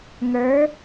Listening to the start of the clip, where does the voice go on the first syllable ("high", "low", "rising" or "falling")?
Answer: rising